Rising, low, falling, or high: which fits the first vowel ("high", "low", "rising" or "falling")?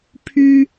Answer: high